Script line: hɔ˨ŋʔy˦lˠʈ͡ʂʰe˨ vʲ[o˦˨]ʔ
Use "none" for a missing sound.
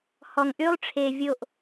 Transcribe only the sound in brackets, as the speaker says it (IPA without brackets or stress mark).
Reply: o˦˨